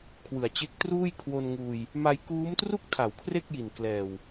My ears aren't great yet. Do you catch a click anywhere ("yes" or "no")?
no